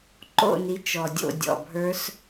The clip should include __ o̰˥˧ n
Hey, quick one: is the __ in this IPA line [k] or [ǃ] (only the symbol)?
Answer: ǃ